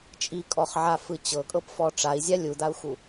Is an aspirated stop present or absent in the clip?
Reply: absent